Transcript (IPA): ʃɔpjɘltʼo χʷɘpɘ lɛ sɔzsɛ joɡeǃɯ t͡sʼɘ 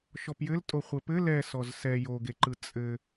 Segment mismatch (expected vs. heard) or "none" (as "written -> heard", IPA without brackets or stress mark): none